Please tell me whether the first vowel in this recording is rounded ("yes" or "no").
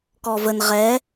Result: yes